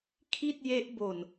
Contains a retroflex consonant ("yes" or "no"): no